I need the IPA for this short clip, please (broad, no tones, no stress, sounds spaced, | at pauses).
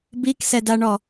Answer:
b i k s ɛ d a ɳ ɔ